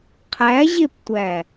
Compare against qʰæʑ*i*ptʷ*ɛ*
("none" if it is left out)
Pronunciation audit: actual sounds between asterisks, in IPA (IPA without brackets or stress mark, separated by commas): e, æ